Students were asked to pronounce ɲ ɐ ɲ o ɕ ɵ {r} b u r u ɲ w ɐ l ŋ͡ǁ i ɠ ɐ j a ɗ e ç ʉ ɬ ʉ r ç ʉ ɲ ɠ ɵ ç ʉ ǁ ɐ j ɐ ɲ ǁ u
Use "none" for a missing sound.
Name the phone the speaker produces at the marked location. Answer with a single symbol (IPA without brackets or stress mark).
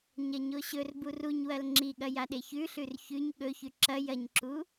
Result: r